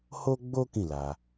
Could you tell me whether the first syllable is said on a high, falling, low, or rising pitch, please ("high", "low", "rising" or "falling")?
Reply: high